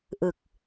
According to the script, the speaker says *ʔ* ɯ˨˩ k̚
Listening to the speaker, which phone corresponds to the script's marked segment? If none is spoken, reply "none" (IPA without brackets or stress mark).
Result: ʔ